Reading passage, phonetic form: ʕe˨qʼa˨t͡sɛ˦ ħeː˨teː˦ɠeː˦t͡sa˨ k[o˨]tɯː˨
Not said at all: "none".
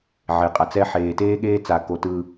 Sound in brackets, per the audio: o˨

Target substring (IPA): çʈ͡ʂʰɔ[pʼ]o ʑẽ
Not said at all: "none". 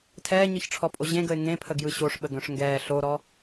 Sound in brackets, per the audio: pʼ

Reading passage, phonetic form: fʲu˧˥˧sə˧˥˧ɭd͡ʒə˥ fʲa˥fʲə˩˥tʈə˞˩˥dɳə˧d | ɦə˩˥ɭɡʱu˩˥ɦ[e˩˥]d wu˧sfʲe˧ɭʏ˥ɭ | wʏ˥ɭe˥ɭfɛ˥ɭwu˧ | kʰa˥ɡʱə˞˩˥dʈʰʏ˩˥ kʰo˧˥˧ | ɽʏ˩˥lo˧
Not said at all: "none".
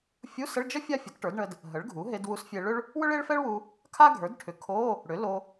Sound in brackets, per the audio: e˧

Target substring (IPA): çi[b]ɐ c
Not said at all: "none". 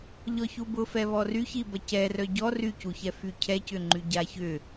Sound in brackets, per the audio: b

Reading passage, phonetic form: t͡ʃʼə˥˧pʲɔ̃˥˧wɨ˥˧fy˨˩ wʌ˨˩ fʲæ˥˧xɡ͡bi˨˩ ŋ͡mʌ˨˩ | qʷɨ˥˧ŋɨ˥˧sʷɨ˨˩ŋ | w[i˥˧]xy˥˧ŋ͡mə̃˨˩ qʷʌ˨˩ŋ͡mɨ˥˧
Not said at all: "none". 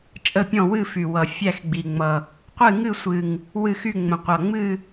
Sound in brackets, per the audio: ɨ˥˧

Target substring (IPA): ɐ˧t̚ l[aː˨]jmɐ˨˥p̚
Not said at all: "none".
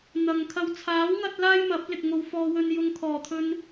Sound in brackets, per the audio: aː˥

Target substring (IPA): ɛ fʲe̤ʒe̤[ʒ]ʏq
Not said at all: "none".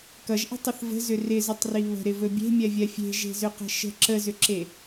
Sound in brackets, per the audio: z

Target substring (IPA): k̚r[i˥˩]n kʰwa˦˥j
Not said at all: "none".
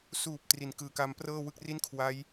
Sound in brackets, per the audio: i˥˩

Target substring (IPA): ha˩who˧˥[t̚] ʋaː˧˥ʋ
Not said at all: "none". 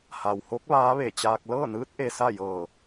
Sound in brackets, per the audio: k̚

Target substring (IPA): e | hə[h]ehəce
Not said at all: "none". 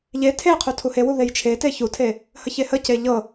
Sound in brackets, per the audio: ç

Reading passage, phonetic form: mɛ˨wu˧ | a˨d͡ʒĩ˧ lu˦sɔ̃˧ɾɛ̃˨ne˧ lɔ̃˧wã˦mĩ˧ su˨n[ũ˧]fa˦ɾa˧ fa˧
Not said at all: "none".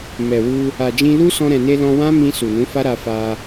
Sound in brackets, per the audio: ũ˨˦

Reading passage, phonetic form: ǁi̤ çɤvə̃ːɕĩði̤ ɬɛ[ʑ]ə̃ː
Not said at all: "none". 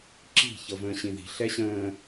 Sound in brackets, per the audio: ɕ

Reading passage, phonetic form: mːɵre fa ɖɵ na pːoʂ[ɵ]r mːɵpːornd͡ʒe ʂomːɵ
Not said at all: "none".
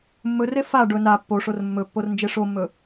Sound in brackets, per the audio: o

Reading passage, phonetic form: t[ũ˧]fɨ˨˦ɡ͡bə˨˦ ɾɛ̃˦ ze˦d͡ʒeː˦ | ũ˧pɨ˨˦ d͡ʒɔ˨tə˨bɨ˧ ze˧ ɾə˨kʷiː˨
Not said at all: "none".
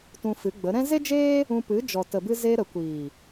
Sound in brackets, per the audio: ũ˧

